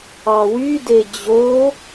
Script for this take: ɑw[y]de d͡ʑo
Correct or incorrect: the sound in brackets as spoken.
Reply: correct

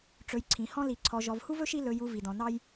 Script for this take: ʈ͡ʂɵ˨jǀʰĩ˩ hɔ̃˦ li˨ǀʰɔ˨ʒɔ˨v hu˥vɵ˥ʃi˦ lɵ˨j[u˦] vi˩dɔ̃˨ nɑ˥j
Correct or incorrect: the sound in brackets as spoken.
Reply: incorrect: u˨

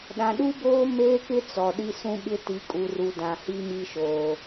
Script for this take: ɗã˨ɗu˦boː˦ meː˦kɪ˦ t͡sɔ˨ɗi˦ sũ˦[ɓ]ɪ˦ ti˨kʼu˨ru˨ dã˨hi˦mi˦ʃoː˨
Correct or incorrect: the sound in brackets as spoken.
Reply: correct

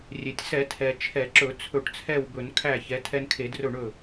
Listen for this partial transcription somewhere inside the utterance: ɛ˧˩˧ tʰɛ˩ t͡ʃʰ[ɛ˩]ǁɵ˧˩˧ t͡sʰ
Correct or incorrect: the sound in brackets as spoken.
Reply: incorrect: ɛ˧˩˧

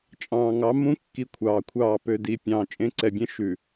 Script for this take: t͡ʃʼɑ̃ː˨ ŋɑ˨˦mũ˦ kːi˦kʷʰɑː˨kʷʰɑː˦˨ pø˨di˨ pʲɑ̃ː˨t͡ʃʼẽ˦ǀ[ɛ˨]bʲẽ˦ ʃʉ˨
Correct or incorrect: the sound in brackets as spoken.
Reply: correct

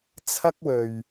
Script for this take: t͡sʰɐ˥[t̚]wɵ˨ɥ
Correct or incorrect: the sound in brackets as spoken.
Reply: incorrect: k̚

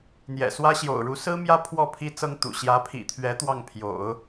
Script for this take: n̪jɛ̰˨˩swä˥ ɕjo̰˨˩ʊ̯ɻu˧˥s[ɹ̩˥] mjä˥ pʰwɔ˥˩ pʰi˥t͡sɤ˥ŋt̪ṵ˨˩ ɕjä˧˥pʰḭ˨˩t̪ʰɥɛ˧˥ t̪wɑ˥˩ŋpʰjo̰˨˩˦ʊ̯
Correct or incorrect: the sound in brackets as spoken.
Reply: correct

